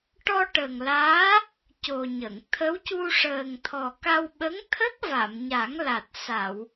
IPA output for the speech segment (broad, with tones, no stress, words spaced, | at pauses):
ʈɔ˧ ʈə˨˩ŋlaː˧˥ | co˨˩ɲə˨˩˨ŋ t̪ʰə˧˥w cu˧ʂəː˨˩ŋt̪ʰɔ˨˩ ka˧wɓə˧˥ŋt̪ʰə˦˥k̚ va˨˩˨mɲa˨˩˦ŋla˨˩t̚ sa˨˩˨w